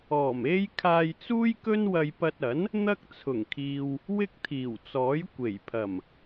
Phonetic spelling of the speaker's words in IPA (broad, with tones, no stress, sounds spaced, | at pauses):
ɔː˨˩ m e˥ j kʰ aː˧ j t͡s uː˥ j k ɵ˥ n w ɐ˧ j p ɐ˧ t̚ ɐ˨˥ n | n̪ ɐ˥ k̚ t͡sʰ ʊ˨˩ ŋ kʰ iː˨ w | w ɪ˥ k̚ t̪ʰ iː˨˩ w t͡s ɔː˨˥ j kʷ e˨˩ j pʰ ɐ˨˩ m